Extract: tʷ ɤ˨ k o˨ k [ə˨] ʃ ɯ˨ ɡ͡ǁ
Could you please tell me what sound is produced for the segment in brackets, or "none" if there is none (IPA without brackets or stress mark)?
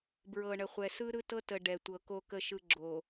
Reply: ə˨